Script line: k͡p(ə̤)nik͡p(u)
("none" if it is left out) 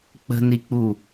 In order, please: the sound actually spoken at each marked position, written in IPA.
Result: ə̤, u

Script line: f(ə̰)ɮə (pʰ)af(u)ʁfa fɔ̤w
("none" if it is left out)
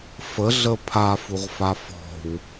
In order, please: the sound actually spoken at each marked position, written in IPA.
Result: ə, pʰ, u

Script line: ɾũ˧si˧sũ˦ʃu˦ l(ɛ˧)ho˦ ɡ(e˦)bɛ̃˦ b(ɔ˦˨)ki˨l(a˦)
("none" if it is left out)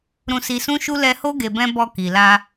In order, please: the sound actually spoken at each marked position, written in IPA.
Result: ɛ˧, e˧, ɔ˧, a˧

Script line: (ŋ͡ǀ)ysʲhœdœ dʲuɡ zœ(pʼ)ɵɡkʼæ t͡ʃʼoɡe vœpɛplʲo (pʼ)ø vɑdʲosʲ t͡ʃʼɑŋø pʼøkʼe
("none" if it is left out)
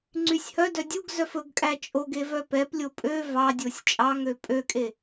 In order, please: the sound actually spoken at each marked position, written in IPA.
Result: ŋ͡ǀ, f, pʼ

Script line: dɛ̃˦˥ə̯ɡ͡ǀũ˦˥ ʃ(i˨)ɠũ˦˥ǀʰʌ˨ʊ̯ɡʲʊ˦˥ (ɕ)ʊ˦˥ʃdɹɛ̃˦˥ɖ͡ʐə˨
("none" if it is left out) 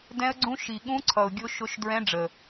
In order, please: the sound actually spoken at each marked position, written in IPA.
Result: i˨, ʃ

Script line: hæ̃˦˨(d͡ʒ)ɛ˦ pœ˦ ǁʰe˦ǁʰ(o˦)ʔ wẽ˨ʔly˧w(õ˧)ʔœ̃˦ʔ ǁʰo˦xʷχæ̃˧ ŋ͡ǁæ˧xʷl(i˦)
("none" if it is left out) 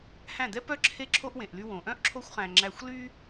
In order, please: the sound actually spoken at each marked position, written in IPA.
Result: d̪, o˦, õ˨, y˦

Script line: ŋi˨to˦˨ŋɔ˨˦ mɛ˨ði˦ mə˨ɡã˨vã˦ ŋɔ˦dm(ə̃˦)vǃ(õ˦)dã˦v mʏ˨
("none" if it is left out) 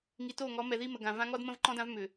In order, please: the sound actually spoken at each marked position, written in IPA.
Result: ə̃˦, ɔ̃˦

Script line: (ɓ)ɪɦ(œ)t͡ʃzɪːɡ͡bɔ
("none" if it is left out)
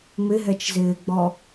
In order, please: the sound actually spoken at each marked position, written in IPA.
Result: m, ɛ

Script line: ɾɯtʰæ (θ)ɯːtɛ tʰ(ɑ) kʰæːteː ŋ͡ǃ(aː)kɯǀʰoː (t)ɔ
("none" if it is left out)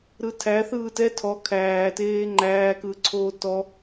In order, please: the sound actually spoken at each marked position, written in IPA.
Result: θ, ɔ, æː, t

